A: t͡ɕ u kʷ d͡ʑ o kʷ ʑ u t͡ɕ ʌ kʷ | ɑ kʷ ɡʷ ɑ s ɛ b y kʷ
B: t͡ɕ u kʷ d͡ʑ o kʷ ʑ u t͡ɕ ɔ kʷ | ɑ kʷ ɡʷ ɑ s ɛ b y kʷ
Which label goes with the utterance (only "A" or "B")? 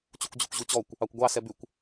B